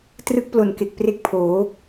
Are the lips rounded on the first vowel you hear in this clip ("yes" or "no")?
no